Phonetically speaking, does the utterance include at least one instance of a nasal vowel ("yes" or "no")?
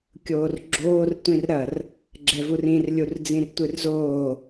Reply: yes